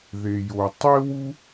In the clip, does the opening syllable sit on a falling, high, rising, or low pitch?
low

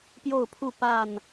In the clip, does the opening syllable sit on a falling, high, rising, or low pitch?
falling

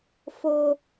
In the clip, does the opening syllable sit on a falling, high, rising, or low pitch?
high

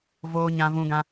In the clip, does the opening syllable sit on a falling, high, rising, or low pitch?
high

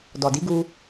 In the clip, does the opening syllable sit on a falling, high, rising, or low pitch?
low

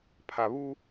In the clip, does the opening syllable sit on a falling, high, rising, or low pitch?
low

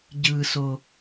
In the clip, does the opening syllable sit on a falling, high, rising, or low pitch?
low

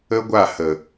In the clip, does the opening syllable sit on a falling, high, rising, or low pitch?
high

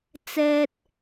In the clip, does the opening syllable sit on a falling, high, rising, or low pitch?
high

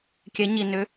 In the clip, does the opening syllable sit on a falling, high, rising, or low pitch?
rising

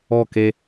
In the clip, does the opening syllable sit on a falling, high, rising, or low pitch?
falling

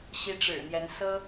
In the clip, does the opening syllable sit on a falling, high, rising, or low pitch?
rising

